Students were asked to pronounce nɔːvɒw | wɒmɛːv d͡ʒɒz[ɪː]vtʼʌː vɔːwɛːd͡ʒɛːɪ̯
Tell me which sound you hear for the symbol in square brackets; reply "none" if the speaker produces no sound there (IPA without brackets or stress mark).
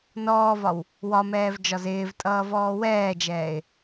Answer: ɪː